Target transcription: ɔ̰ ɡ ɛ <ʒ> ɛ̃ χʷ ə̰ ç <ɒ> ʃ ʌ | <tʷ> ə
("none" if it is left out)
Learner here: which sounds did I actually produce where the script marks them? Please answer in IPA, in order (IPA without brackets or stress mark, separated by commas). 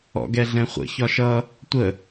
ɮ, ɒ, tʷ